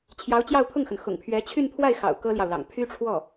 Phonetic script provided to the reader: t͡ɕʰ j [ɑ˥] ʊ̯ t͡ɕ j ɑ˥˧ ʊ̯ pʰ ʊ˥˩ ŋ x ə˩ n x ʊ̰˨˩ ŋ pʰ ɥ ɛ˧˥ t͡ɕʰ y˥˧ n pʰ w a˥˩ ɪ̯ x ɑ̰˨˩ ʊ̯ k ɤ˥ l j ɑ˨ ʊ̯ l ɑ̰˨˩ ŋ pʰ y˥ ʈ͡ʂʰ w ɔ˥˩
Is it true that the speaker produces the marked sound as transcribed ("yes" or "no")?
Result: no